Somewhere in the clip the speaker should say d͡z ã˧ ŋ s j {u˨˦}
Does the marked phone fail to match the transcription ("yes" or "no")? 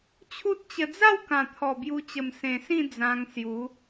no